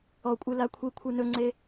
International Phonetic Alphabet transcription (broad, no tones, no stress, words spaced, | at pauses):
ɔ kʷʼɨlakʷʰikʷʰɨ nɵŋ͡ǀe